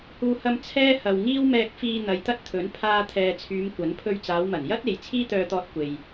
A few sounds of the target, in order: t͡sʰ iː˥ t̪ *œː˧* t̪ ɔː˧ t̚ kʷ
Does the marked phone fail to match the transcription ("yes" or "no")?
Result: no